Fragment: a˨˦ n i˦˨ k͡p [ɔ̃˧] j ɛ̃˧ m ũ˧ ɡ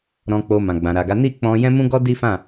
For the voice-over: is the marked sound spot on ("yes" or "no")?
yes